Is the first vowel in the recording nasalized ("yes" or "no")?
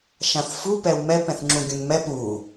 yes